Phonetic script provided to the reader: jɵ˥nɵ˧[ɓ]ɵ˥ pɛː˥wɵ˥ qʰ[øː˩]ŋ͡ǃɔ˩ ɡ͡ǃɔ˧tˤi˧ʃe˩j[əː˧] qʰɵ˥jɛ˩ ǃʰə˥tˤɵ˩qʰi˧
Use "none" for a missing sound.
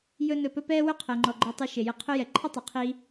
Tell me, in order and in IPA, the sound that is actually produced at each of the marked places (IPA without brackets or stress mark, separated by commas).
p, əː˩, ə˧